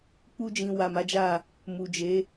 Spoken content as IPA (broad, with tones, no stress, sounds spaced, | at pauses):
k͡p u˧ d͡ʒ ĩ˨ w a˨ m a˨˦ d͡ʒ a˦˨ | m u˨ d͡ʒ e˨˦